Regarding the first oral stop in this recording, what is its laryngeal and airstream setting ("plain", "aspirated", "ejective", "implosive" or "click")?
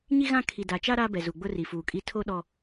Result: aspirated